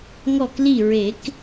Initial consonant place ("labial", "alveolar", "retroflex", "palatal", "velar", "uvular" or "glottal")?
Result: velar